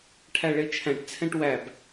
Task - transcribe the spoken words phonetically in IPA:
ʈʰ æ ɭ e t͡ʃʰ æ̃ ʈ t͡sʰ ɛ̃ ʈ w æ b

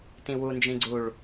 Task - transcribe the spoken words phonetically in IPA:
t ĩ w u n d͡ʒ ĩ ɡ͡ǀ u ɭ

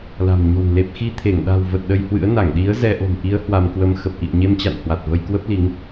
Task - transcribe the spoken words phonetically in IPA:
l a̤˨˩ m ɲ o̤˨˩ n l e˨˩ p̚ x i˧ t̪ʰ e˧˩ ŋ ɗ a̤˨˩ w v ə˨˩ t̚ ɗ ə˧ j h w ɨ̰˧˥ ə̯ n a˧˩ ŋ ɗ i˨˦ ə̯ z ɛ˧ ʔ o̤˨˩ m ʔ i˨˦ ə̯ h w a˧ m k w ə˧ m x ə˨˩ p̚ ʔ ḭ˧˨ ə̯ ɲ e˧ m t͡ɕ a̰˧˨ n h w a˨˩ t̚ v ə˧ j k w ə˦˥ p̚ l i˨˦ ŋ

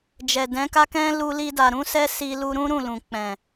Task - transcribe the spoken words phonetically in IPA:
d͡ʒ ɛ˨ d ɛ̃˨˦ k a˦ k ɛ̃˦ l u˧ l i˧ d a˨ ɾ ũ˨˦ s ɛ˦ s i˧ l u˧ ɾ ũ˦ ɾ ũ˦˨ l ũ˨ k͡p ɛ̃˨

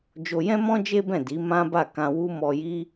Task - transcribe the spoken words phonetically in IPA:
d͡ʒ o˧ j ɛ̃˦ m ɔ̃˦ d͡ʒ e˦ b ɛ̃˦˨ d i˨˦ m ã˦ b a˦˨ k ã˧ w u˦ m ɔ˧ j i˦

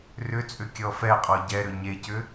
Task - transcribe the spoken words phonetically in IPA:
r ʏ t͡sʼ ʏ kʲ ɔ f ɛ qʼ ɔ ɟ ɛ ɾ ʏ ɲ e c ʏ

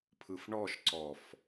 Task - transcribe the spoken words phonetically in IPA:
pʰ ɯ f ɳ ɔ ʃ ǀ ɔ f

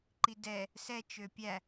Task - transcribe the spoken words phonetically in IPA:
ǃ i d ɛ | s ɛ t͡ʃ ø pʲ æ

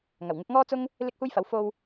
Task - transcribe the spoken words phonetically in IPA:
ŋ ɐ˨˩ w ŋ ɪ˨˥ k̚ ŋ ɔː˥ t͡s ʊ˥ ŋ | l ɪ˥ k̚ h uː˥ j f ɐ˨˥ w f o˧ w

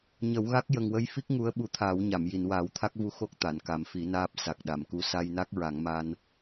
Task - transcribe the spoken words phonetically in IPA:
ɲ ə˨˩˦ w ɣ a˦˥ k̚ j ə˨˩ ŋ w ə˧ j f i˦˥ k̚ ŋ u˧˥ ə̯ ɓ u˧ t̪ʰ aː˨˩˦ w ɲ a˨˩˨ m j i˨˩˨ n w aː˨˩˦ w t̪ʰ a˦˥ k̚ v u˧˥ x o˦˥ k̚ t̪ a˨˩˨ n k a˨˩˦ m f i˨˩˦ n aː˦˥ p̚ s a˨˩ k̚ ɗ a˨˩˨ m k u˧ s a˧ j n a˦˥ k̚ ɹ a˨˩˦ ŋ m a˧ n

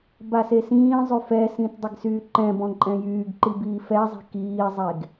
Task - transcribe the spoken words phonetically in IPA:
b a s e s ĩː zˤ y f ɛ s ĩ t dˤ i ɡ s yː ǃ ɛ̃ b ɔ̃ ǃʼ ɛ̃ j yː ɡ ǃ i b iː f ɛ zˤ i̤ k iː zˤ e ɡ

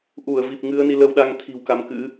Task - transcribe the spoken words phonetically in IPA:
ʔ u˧˩ ə̯ v i˨˩ p̚ ŋ ɨ˨˦ ə̯ n i˧ l ə˧ w ɗ a˧ ŋ t̪ʰ i̤˨˩ w k a˨˦ m k ɨ̰˧˥

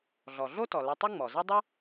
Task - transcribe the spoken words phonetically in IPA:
ɮ ɔ˩ ɮ o˥ t ɔ˩ l ɘ˧ tˤ ɘ˥ ŋ͡m ɔ˩ z e˥ dˤ ɘ˥

